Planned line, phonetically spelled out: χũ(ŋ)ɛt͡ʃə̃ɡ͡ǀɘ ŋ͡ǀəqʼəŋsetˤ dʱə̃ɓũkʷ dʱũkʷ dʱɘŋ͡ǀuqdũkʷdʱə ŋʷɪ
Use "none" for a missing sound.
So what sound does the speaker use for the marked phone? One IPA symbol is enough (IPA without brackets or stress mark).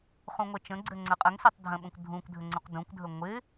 ŋʷ